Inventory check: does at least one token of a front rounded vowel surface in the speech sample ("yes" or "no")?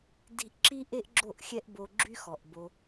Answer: yes